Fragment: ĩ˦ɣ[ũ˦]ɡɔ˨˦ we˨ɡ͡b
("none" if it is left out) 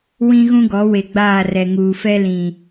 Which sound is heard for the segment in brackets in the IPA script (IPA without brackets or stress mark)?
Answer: ũ˦